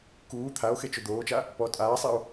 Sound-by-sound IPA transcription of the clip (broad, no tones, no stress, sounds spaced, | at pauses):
k uː t̪ʰ a o̯ x e t͡ʃ ʊ d̪ oː t͡ʃ a | p ɔ tʼ aː sˤ i o̯